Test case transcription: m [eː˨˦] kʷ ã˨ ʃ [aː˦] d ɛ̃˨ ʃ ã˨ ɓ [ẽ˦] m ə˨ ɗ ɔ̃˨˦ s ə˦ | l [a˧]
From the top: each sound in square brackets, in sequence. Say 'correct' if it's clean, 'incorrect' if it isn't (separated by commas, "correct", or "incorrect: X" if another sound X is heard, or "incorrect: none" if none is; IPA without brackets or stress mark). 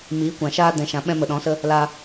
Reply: incorrect: iː˨˦, correct, incorrect: ɛ̃˦, correct